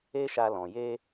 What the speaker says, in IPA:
e˦ʃa˧lɔ̃˨ je˧

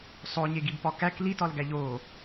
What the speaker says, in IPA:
sˤoɲeɡibpɒ kæk litɒlɡæ ʎo

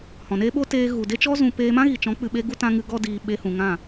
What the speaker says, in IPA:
hɔ̃˨neː˦ ɓo˦teː˧ ɣu˨de˦t͡ʃɔ˦ zũ˧ peː˧mã˦ɣi˨t͡ʃɔ̃˨˦ k͡pɨ˨ɓe˧ɡu˧ tã˧ŋɨ˧ ɡɔ˦diː˧ ɓe˧hũ˨ ŋã˦˨

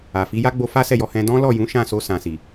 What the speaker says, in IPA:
a˨ fi˨˦ja˦ɡ͡bo˧ fa˦sɛ˦˨jɔ˧hɛ̃˧ dɔ̃˦lɔ˦˨ jũ˨˦ʃã˦˨so˧ sã˨si˨

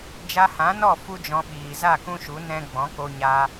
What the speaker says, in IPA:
d͡ʒa˧hã˨˦nɔ˦˨ fu˦d͡ʒɔ̃˧ ɓiː˨za˦˨ kũ˦ʃu˨˦ nɛ̃˦ ɡ͡bɔ̃˨˦ko˧ɲa˧

